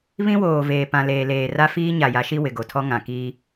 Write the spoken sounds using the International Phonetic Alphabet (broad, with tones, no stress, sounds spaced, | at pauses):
β ĩ˦ w oː˨ v eː˨ p ã˨ l eː˨ l eː˨ r a˦ f iː˦ ɲ a˨ j a˨˦ ʃ i˦ w ɪ˨ ɡ o˨ tʰ ɔ˦ ŋ ã˨ k iː˦